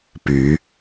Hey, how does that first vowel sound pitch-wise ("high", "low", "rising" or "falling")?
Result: rising